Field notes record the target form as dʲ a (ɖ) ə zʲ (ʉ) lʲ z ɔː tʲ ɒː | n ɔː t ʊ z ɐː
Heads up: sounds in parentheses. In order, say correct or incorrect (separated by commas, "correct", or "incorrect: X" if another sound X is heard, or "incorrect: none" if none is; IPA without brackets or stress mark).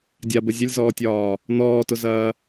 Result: incorrect: b, incorrect: ʊ